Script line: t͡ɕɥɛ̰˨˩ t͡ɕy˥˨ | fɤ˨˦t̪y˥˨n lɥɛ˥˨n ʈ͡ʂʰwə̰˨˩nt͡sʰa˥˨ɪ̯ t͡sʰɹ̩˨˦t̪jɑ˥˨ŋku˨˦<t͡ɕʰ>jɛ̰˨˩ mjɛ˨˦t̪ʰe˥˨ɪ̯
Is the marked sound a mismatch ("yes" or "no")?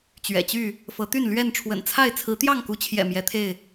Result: no